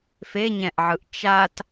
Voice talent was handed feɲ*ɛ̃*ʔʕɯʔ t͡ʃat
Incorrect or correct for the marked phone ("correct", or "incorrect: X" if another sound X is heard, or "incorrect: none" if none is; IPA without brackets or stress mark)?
correct